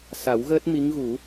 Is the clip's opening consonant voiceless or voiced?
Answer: voiceless